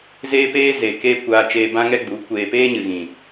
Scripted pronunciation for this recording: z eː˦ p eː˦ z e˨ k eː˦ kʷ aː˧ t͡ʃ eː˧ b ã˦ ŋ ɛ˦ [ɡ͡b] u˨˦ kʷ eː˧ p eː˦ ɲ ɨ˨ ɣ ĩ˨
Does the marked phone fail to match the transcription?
no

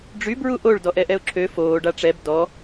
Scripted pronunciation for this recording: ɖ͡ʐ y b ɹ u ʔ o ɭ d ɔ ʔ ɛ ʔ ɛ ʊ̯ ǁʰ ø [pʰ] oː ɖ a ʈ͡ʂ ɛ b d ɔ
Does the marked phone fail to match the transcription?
yes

